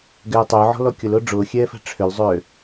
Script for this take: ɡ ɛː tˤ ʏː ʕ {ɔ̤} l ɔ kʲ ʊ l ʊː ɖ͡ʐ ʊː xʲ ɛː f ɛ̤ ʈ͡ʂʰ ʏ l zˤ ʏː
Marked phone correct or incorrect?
correct